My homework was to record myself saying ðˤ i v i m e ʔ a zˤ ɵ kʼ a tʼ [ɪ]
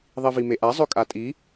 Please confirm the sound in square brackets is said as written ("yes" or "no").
no